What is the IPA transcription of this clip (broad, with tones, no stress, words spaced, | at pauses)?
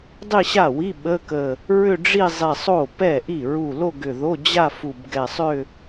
dˤi˥˧ɕa˥˩wi˧˥˧ ɓə˧˥˧kə˧˩ | ɹʏ˥˧ɖ͡ʐi˥˧zˤi˧˩ sˤo˥˩pɛ˥˩ʔi˥˩ ɹu˧˩ lo˥˧ɡʏ˧˩ðo˧˥˧ d͡ʑa˥˧ fu˧˩bɡɛ˧˩sˤʏ˥˧